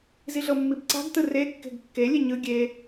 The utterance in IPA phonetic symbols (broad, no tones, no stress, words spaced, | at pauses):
ziɮɤmːibǀa̤ɡ tɯre kːe̤ɡkːe lʲeɲɯ ɡʲe